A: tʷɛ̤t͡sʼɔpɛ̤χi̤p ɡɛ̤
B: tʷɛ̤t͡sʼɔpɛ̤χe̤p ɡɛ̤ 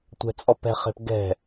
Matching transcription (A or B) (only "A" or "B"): B